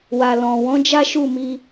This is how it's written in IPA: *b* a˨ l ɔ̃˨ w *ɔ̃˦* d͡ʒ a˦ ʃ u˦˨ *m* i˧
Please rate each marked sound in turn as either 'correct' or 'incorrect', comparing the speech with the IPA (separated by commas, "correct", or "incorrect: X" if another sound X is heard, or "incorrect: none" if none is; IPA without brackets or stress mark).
incorrect: w, incorrect: ɔ̃˨˦, correct